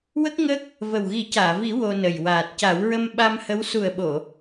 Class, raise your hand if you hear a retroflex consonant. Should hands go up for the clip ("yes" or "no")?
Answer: no